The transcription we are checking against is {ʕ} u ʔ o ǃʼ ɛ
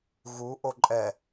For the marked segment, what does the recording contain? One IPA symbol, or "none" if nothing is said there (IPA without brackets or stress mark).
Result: ɣ